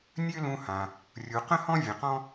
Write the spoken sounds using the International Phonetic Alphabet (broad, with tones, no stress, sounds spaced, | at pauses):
nʲ ø˥ l ũ˧ h ã˩ | rʲ u˩ q ə̃˥ h ɔ̃˥ vʲ ə̃˩ q ɔ̃˥